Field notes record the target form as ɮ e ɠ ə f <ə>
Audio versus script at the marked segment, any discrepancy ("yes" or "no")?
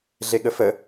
no